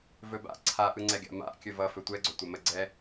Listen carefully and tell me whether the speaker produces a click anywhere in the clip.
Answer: yes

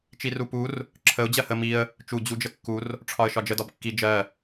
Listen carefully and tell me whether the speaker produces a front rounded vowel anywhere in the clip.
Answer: no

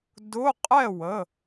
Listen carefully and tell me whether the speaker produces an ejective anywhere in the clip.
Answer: yes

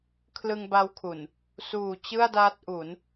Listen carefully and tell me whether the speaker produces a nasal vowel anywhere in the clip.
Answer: no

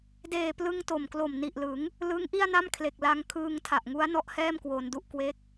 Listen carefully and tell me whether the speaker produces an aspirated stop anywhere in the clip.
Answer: yes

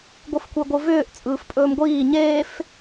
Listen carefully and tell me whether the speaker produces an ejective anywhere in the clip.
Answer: yes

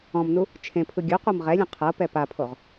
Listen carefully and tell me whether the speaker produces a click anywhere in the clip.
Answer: no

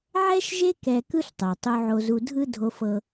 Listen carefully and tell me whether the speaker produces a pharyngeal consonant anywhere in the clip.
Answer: yes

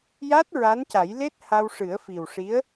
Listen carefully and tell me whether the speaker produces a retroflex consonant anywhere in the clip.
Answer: yes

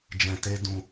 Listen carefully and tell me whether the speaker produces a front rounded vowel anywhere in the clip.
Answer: no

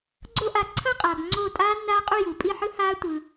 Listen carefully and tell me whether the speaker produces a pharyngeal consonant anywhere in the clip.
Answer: yes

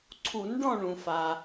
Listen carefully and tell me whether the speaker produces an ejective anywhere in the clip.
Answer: no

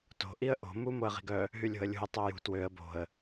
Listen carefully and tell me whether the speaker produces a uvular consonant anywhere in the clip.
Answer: yes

